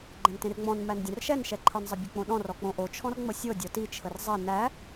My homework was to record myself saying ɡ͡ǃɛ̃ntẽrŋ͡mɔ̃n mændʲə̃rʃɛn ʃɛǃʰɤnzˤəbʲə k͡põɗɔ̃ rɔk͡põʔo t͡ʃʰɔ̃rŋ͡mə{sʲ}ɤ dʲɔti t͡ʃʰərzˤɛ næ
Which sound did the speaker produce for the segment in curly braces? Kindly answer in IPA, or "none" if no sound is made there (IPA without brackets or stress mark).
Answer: sʲ